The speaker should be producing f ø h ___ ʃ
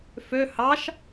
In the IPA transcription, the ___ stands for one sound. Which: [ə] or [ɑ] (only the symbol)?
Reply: ɑ